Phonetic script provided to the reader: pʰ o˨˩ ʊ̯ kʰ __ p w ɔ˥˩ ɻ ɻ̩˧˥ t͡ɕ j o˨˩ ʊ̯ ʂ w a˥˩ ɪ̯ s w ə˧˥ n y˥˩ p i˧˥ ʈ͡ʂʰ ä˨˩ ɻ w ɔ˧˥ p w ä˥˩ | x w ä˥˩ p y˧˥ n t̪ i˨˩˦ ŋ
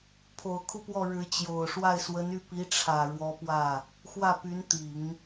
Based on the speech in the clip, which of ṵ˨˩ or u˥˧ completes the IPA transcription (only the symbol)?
u˥˧